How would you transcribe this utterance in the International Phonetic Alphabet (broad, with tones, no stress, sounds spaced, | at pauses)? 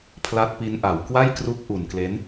pʰ l a˦˥ t̚ p i˦˥ n ʔ a˨˩ w k w a˥˩ j k r u˦˥ k̚ ʔ u˨˩ n k l e˦˥ n